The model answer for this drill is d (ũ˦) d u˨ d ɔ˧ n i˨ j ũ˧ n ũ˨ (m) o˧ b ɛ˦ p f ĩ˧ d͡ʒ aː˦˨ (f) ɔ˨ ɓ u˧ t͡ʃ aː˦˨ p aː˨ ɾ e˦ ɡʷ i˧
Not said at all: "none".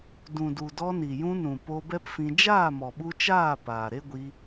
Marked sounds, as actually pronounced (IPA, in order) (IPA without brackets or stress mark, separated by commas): ũ˨, p, m